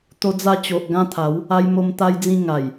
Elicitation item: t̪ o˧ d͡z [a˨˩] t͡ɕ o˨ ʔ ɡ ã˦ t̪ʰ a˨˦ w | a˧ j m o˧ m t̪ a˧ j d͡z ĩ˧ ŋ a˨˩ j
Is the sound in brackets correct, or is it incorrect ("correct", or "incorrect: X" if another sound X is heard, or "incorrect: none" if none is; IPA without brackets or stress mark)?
incorrect: a˧